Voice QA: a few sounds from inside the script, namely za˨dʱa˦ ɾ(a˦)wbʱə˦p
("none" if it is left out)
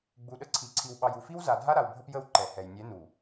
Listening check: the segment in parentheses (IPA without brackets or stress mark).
a˨